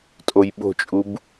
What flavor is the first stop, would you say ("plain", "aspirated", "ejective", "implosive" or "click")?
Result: ejective